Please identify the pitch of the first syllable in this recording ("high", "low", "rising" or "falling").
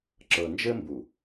low